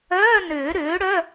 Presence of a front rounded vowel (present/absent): present